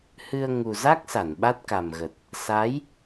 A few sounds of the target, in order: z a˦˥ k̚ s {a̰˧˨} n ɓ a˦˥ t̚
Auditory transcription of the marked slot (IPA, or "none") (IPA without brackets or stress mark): a˧˩